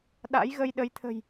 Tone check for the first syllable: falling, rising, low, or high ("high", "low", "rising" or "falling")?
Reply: rising